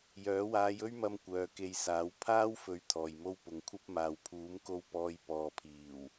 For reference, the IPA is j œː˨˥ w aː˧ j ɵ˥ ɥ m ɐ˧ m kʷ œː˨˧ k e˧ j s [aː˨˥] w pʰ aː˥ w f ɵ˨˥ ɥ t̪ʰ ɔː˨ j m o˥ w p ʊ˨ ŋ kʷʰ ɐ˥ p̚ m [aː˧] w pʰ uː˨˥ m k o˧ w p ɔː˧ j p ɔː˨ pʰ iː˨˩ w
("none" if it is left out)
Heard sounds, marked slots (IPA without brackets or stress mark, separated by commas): aː˨˥, aː˨